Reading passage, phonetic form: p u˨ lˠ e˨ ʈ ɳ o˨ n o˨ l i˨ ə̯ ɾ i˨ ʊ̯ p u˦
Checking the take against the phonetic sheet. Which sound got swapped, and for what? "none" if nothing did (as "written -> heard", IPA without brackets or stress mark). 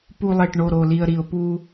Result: n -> ɾ